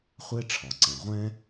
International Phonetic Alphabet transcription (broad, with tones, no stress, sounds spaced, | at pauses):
χʷ eː˥ ʈ͡ʂʰ ɒ˩ ǀ ɛ̃˩ ʁʷ ɛ̃˥